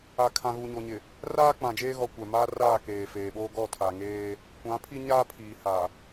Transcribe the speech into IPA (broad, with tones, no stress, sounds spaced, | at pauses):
a˨ kʰ ã˨ ɣ u˨ ɲ o˨ ɲ ɪ˨ | r aː˦ k͡p ã˨ d͡ʒ eː˦ ɣ ɔ˨ kʷ ɛ˨ m aː˦ r aː˦˨ k eː˨ f eː˨ ɓ oː˦ ɡ ɔ˦˨ tʰ a˨ ŋ eː˦ | kʷ ã˨˦ pʰ i˦ ɲ aː˦ pʰ iː˨ h a˨